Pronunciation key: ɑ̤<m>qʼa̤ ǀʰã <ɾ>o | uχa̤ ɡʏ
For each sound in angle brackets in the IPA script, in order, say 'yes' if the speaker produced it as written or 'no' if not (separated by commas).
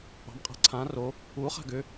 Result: yes, no